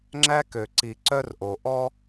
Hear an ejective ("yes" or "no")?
no